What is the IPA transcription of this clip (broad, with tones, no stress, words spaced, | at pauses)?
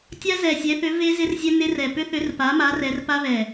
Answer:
tʲa˦˥zɛ˨˩sʲɛ˨˦θʏ˨˦ ve˦˥ zɪ˦˥rzʲɛ˦˥nɪ˦˥r ɛ˨˩pʏ˦˥θʏ˨˦r pa˨˦ma˨˦r ɛ˨˦rpa˦˥ βɛ˨˩